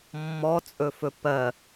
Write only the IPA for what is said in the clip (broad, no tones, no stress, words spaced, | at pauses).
mːɔt͡sʼɵfɵ pɜ